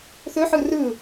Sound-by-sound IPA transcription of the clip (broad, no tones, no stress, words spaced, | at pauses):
θɵħɯ rɯ